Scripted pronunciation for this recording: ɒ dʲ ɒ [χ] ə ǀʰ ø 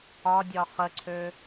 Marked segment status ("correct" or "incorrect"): correct